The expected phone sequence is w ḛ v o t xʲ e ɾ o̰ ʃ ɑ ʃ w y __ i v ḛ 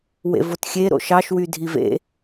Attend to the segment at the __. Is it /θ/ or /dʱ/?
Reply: dʱ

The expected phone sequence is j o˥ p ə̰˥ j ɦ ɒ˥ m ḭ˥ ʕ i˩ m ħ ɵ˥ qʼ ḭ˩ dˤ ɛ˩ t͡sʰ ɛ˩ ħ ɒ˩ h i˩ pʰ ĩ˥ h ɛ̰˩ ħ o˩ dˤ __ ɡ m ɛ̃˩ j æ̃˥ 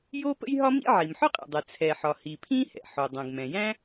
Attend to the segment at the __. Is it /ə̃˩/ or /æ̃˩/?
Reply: æ̃˩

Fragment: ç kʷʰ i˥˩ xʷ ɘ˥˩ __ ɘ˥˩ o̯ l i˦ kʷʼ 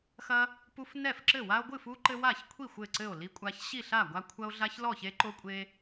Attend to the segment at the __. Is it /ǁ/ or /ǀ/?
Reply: ǀ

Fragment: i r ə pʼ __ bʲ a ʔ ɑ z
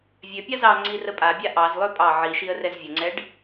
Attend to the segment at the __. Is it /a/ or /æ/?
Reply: a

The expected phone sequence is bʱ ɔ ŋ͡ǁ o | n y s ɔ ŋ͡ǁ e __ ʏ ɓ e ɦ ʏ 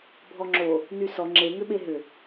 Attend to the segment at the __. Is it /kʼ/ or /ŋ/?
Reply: ŋ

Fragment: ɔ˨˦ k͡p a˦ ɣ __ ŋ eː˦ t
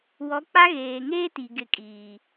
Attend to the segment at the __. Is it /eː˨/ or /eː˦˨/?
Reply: eː˨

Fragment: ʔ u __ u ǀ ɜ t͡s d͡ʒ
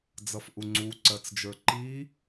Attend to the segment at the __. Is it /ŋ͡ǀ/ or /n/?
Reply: ŋ͡ǀ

